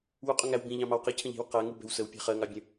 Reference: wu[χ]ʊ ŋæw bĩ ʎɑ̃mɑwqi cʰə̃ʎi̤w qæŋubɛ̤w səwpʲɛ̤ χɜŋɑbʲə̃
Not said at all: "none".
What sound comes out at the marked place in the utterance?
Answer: qʼ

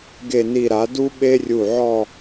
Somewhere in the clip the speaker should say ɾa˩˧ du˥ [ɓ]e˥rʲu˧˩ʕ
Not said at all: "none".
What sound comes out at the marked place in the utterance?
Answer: ɓ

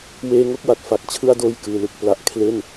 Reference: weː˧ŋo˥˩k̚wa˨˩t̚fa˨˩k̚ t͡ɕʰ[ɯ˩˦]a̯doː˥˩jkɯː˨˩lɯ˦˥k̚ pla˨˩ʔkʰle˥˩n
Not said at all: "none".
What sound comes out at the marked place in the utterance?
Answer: ɯ˥˩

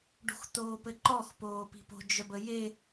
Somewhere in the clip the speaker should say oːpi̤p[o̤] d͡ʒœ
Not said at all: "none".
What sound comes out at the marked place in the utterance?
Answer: o̤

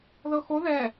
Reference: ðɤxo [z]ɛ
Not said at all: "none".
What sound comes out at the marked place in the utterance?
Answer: ð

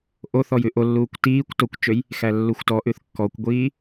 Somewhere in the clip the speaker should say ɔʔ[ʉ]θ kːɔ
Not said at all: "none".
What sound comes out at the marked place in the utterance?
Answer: ʉ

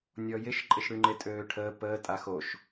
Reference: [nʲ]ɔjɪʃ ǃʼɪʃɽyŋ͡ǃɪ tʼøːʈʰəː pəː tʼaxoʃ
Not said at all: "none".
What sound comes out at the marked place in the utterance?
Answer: nʲ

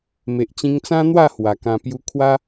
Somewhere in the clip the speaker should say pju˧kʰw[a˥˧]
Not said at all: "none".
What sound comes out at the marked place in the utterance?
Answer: a˦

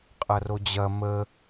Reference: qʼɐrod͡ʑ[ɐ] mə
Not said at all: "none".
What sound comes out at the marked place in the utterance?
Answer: ɐ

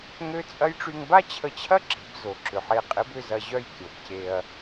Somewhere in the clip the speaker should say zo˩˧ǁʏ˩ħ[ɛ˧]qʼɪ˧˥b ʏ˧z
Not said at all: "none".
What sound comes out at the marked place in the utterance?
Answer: e˧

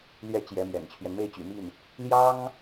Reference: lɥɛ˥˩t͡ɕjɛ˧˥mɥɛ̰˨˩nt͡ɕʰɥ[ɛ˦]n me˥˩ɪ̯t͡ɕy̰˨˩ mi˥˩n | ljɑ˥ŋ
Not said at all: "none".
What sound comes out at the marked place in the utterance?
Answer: ɛ˦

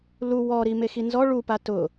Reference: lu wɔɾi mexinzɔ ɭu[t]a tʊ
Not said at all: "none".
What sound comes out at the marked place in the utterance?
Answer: p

